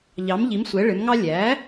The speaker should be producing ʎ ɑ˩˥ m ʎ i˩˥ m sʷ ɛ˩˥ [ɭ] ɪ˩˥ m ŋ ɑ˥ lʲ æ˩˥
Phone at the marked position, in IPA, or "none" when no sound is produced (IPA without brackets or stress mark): ɭ